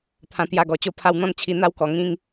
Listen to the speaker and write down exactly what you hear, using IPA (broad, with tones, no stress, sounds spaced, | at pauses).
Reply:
t̪ʰ ã˧ t̪ j a˧ ɡ ɔ˨˩ t͡ɕ o˥˧ pʰ a˧ w n̪ ɔ̃˥˧ n t͡ɕʰ i˧ n̪ a˦ w k ɔ˨˩ ŋ ĩ˧ ŋ